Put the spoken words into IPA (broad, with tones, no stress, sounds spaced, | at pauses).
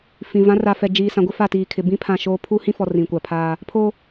f ĩ˨ v ã˨˦ r a˨ f ɛ˨ d͡ʒ iː˨ s ã˨ ɡʷ ɪ˦ f a˦˨ t iː˨ kʰ ɪ˨ b ĩ˦ pʰ ã˦˨ ʃ oː˦ pʰ u˦ h ĩ˦ f ɔ˨ r ĩ˨ kʷ a˨ pʰ aː˦ | pʰ o˦